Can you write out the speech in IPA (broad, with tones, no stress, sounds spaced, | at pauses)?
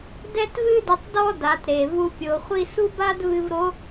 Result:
d ɛ˥ t v ɨ˥ d ɘ˧ tˤ d ɔ˥ d a˩˧ t ɾ e˩ v u˧ pʲ o˩˧ χʷ i˥ s u˥ b a˥ d v ɨ˧ v ɾ o˧˥